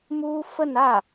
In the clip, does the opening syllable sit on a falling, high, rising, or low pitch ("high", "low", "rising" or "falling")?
high